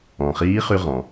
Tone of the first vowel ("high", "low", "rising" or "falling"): low